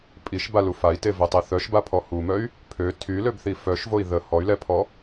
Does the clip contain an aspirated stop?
yes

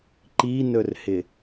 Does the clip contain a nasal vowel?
no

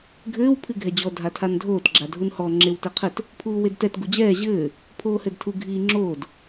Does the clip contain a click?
yes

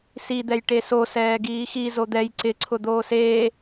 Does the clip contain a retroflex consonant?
yes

